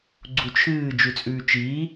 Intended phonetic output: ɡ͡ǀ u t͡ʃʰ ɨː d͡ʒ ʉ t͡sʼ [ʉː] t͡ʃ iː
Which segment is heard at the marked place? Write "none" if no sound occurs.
ʉː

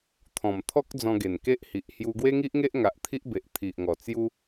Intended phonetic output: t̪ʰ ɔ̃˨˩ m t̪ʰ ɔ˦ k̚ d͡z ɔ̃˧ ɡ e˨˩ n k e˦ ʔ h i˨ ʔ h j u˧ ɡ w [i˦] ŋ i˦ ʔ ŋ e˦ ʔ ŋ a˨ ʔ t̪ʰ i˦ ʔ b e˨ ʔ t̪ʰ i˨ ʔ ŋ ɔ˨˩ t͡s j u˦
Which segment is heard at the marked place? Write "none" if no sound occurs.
e˦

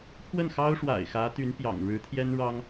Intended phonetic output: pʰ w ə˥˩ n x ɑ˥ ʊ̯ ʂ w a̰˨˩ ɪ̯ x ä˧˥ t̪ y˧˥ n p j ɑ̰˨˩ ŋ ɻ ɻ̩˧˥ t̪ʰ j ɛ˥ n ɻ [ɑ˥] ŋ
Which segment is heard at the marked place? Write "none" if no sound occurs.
ɑ˥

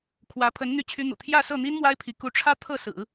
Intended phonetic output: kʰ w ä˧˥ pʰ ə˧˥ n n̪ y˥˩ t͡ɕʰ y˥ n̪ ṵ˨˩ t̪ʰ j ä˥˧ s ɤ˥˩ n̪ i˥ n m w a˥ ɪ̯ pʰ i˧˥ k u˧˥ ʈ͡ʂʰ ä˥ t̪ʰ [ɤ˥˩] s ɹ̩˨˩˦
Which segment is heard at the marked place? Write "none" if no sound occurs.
ɤ˥˩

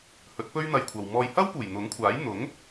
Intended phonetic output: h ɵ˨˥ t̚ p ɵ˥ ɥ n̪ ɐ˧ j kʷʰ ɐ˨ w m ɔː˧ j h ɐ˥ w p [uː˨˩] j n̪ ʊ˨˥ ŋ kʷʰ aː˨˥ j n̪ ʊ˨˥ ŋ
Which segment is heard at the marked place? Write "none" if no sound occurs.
uː˨˩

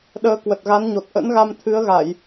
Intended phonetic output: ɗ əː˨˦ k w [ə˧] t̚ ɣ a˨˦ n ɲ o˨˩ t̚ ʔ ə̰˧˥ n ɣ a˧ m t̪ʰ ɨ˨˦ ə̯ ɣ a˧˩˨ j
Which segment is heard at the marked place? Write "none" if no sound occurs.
ə˨˩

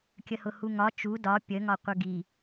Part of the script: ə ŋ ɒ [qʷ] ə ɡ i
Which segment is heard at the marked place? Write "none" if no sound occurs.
qʷ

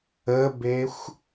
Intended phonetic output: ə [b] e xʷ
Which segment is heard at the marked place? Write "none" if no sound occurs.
b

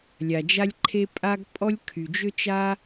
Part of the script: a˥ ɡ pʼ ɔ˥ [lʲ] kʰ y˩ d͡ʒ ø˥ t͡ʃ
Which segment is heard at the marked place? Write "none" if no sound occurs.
lʲ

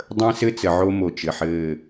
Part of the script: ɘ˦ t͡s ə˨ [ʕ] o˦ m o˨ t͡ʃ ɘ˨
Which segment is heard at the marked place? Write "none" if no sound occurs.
ʕ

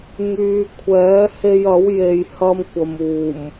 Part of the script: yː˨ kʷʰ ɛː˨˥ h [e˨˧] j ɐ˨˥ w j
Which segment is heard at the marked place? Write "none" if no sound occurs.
e˧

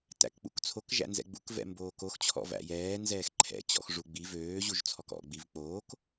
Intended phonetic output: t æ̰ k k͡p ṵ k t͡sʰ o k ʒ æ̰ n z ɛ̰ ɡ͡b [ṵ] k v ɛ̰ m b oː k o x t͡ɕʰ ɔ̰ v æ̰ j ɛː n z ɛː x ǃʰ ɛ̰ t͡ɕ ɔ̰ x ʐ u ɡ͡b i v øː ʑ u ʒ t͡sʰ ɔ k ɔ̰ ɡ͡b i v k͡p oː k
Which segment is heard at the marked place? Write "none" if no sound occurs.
ṵ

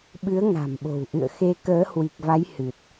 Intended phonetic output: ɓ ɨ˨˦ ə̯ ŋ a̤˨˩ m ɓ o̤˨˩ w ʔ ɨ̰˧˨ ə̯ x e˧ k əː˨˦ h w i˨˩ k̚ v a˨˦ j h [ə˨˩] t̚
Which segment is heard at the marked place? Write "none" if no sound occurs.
ɨ˨˩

